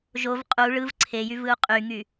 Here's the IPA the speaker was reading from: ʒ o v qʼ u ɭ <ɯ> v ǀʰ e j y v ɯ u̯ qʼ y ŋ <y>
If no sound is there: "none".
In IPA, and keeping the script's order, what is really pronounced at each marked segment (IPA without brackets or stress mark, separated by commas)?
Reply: ɯ, y